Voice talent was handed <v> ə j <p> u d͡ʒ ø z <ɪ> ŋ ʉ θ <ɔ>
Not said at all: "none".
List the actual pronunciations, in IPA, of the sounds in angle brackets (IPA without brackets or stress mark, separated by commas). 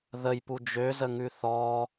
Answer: ð, p, ə, ɔ